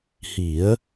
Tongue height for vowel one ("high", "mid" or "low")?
high